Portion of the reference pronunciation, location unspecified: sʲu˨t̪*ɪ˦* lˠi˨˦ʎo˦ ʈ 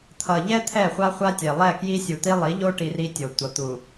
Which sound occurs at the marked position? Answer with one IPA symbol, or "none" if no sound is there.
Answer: i˦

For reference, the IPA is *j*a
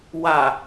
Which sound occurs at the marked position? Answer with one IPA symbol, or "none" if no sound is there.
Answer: w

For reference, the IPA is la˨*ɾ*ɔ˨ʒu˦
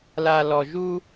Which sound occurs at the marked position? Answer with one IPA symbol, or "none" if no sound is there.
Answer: l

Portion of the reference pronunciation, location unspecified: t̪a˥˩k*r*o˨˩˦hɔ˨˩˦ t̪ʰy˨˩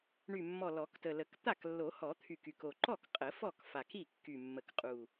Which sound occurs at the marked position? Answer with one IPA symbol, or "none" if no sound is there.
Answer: lː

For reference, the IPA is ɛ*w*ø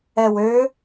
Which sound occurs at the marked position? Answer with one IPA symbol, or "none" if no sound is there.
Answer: w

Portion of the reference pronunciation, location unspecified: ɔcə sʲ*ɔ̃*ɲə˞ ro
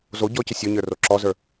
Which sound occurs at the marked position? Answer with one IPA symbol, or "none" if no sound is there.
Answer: ɔ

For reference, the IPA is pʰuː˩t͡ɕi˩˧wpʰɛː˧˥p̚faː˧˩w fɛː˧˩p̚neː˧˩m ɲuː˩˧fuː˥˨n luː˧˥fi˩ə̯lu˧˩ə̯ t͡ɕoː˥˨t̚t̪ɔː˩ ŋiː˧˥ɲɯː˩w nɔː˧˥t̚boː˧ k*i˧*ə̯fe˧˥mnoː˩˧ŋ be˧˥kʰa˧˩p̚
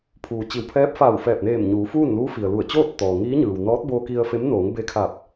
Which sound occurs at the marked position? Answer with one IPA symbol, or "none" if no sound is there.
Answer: i˧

